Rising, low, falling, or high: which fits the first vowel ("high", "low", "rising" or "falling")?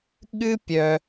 high